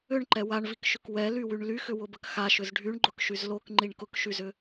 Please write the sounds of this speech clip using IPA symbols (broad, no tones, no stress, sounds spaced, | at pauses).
ʏ ɳ ǃ ɛ w a ɳ v i k ʃ ʏ k w ɛ l y w y ɳ l y x ʏ w ʊ b ə k x a ʃ ʏ z ɖʱ y ɳ ɡ͡ǃ ʊ k ʃ y z l o k ŋ͡ǃ i ɳ k ʊ k ʃ y z ʏ